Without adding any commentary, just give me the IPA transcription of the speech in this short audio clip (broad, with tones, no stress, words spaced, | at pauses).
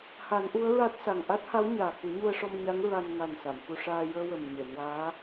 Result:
ha˨˩˦nʔu˧˥ə̯ɹa˦˥t̚sa˨˩ŋ ʔa˦˥t̚ha˧˥wɲaː˨˩ ku˨˩˦ɲu˧ə̯ʂɔ˧mɲa˧˥ŋ ɹa˧n ŋa˨˩n sa˨˩˨mfu˧ ʂaː˧ jəː˧wə˨˩m ɲe˨˩˨nwaː˧˥